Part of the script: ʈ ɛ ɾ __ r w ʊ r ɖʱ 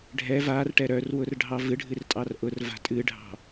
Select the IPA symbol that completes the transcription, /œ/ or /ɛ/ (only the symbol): œ